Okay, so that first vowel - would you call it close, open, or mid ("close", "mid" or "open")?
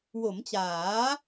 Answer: mid